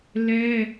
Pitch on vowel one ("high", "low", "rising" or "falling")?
high